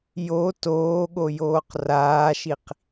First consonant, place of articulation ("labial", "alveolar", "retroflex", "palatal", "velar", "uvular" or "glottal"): palatal